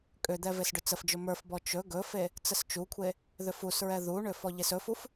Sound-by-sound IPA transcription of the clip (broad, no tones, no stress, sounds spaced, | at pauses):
kʼ ʏ d̪ ɛ v e s ɖ ʏ t͡s ə f d͡ʒ ɵ m ə˞ f b ɔ t͡ʃ ɵ ɡ ɵ f e | t͡s ə s t͡ʃ u kʷʰ e | ð ʏ f u s ɹ ɛ ð u ɳ ʏ f ɔ ʎ e s ɵ f u f